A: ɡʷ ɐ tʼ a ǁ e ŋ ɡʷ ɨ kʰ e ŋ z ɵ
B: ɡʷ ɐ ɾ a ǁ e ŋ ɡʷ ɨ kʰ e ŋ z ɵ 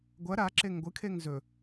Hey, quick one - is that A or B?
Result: B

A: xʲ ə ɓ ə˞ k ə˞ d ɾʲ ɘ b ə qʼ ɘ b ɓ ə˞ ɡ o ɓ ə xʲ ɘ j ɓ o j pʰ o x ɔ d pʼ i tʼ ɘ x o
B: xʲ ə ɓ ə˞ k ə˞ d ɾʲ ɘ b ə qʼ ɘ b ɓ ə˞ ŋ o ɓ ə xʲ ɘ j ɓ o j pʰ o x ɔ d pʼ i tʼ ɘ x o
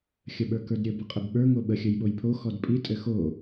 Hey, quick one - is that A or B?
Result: B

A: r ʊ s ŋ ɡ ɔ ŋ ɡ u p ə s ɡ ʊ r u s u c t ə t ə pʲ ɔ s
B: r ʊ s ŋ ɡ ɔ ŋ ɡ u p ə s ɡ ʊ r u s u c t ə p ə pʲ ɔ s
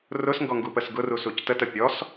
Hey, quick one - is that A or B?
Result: A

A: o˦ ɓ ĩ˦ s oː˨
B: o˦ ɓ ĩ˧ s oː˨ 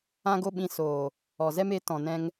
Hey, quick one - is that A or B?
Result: B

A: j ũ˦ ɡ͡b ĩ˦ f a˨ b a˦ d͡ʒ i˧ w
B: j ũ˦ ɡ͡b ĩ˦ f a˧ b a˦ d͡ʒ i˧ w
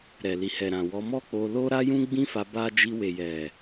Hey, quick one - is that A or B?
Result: B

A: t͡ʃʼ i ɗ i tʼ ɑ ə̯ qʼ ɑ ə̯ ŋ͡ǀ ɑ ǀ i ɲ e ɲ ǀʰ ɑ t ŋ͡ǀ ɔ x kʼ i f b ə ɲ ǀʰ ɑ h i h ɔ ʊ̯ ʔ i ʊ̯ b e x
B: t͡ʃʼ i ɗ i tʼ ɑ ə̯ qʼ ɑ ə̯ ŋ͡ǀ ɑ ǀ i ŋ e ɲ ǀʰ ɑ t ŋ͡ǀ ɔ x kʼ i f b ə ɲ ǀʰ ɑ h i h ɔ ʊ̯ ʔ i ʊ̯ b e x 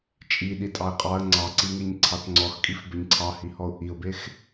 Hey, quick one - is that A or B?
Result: B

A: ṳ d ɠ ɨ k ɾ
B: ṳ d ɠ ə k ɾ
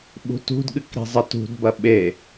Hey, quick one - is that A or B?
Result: A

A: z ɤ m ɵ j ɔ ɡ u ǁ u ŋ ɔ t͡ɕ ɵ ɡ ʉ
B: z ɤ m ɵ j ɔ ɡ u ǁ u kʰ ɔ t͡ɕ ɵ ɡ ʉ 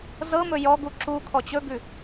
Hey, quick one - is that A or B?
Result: B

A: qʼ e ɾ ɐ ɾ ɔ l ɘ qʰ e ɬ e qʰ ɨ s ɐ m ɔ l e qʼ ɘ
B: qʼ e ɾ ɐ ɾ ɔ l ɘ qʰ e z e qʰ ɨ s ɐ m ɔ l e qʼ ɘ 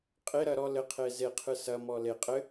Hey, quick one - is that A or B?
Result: B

